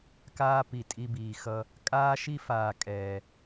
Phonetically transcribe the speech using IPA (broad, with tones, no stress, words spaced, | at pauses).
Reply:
kaː˦pi˨tʼi˧biː˨ xʌ˧ | kʼaː˦ʃi˦ faː˨ kʼɛː˨